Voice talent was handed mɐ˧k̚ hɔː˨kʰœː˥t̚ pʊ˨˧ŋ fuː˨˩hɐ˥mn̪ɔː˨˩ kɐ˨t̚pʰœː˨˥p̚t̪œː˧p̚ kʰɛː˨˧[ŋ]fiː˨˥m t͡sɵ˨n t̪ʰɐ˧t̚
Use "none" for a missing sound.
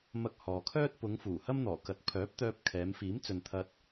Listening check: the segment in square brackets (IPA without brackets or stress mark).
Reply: m